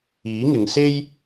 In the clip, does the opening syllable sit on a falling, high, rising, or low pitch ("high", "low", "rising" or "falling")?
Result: rising